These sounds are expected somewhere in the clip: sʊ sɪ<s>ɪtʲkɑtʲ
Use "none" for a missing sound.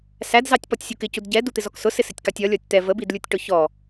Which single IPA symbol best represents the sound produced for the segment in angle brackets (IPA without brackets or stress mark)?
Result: s